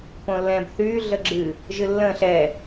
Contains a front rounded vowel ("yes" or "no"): yes